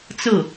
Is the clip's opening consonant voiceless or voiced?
voiceless